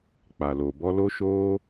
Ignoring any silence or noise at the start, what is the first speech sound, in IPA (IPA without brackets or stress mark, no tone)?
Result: k͡p